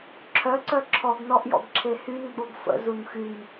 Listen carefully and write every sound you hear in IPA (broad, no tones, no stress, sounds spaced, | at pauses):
ǁʰ œ ǀ œ ǁʰ ɔ ɡ n ɔ ʔ j ɔ̰ ɡ ǁʰ e h y n ɡ͡b o ɡ f ə̰ z u n x y n